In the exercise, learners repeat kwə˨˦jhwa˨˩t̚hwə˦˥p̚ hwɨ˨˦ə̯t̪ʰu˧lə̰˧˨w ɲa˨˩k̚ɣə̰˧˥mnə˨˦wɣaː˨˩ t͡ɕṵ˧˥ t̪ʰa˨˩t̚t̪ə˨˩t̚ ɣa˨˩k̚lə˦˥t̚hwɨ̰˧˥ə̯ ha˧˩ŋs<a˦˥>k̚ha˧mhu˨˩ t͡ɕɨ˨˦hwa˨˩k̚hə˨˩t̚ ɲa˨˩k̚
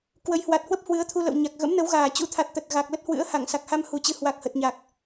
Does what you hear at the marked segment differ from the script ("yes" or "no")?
yes